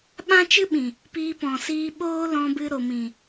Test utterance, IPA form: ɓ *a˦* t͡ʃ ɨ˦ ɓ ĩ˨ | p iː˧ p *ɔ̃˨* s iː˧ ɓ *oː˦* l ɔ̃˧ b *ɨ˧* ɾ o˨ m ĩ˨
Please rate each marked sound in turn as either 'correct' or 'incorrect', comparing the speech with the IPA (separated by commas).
incorrect, correct, correct, correct